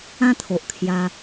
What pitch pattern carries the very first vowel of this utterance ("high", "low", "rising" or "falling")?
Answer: high